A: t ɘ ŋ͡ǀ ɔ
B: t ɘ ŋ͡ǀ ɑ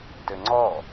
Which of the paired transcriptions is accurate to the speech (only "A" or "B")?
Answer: A